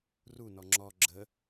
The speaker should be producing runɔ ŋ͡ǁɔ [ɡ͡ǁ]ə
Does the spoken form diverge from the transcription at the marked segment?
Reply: no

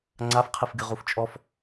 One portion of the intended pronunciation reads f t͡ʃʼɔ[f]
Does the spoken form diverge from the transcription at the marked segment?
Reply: no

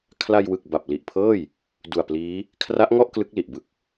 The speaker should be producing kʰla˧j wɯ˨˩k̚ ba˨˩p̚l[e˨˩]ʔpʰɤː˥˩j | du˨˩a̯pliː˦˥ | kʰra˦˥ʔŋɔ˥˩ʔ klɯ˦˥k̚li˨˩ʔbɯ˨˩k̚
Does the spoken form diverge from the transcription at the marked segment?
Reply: yes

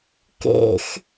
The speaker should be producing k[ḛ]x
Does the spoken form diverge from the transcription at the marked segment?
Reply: no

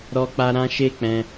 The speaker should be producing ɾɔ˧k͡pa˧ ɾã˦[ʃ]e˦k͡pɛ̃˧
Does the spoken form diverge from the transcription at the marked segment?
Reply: no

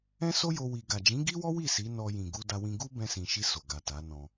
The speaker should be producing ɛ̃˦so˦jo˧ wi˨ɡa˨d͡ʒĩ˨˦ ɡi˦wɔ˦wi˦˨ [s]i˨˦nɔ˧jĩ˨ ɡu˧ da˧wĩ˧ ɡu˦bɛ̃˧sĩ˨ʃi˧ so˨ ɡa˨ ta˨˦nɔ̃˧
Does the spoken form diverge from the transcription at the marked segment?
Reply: no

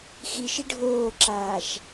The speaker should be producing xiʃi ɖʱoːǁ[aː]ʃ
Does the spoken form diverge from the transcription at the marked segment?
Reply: no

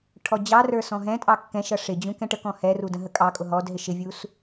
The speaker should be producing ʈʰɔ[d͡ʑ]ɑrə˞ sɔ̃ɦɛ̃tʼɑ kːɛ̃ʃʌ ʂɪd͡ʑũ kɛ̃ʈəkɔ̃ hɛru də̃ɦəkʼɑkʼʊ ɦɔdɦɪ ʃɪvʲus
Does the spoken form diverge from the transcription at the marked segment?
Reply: no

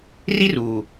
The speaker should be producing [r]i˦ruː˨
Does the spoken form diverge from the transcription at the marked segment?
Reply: no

